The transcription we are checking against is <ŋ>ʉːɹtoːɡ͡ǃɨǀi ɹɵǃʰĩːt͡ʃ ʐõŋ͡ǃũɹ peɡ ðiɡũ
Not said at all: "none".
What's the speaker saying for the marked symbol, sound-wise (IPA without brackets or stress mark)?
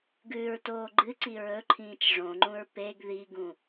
ɡ